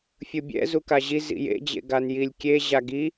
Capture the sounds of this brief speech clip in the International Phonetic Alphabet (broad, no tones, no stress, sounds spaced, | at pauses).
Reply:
fʲ ɯ bʲ ɛ̰ z u k a ʑ i z ḭ j ḛ d͡ʑ ḛ ɡ a n j i lʲ kʲ e ʑ a ɡ i